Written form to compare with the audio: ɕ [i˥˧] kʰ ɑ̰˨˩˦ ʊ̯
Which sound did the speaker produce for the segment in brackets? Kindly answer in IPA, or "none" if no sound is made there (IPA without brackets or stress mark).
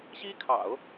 i˥